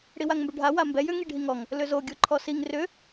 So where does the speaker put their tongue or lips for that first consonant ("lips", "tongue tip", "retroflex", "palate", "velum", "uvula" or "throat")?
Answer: retroflex